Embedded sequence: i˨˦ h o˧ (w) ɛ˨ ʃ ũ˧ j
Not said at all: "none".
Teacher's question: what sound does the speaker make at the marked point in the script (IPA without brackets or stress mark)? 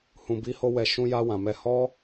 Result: w